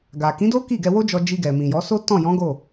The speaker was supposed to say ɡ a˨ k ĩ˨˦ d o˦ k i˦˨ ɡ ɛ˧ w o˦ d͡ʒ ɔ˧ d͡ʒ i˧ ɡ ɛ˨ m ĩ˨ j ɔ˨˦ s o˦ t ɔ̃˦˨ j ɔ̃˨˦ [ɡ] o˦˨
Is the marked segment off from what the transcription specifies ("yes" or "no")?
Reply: no